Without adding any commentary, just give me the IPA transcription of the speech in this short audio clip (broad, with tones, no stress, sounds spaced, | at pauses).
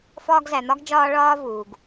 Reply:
f ɒː˦ ɡ z æ˨ n̪ ɒ˥ ɡ d͡ʒ ɒː˦ ɭ ɒː˦ v uː˩ ɡ